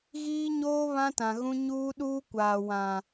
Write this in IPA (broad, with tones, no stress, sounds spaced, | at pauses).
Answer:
ɣ iː˦ ɲ oː˦ β ã˦ t ã˨ ɣ ũ˦ ɲ uː˦ ɗ uː˦ kʷ aː˨ w ã˨